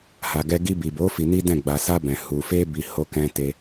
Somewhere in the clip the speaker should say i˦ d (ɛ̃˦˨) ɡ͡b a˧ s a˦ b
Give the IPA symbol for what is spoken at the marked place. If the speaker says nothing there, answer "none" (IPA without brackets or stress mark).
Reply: ɛ̃˦˨